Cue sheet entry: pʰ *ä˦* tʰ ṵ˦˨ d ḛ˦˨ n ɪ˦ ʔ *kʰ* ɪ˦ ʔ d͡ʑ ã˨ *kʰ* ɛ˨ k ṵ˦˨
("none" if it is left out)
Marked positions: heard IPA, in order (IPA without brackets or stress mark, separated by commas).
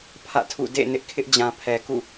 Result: ä̰˦˨, kʰ, pʰ